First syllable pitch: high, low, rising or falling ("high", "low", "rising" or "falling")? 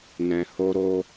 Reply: low